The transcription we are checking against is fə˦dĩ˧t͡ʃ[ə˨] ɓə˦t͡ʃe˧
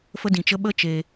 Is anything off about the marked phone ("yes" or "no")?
yes